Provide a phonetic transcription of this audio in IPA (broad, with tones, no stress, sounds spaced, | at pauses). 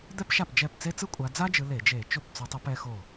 d̪ ɛ˥ p ʃ a˥˩ p d͡ʒ ɛ˥˩ p t͡s e˥ t͡s ɯ˥ kʷʼ a˨˦ d͡z a˥ d͡ʒ ɯ˨˦ l e˧˩˧ d͡ʒ e˧˩˧ t͡ʃ o˥˩ p t͡s o˨˦ tˤ u˨˦ p ɛ˨˦ x o˥˩